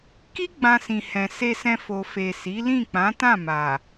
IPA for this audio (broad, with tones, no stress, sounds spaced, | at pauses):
k i˦ ɡ͡b ã˧ s ĩ˨ h ɛ̃˨ s e˧ s ɛ̃˧ f o˨ f e˨ s i˨˦ l ĩ˦˨ k͡p ã˨˦ t ã˦˨ m a˨